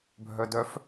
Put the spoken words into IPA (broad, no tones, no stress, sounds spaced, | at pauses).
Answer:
bʱ œ d œ f